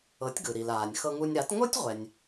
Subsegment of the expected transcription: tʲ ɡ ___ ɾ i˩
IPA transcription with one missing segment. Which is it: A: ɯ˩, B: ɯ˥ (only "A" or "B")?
A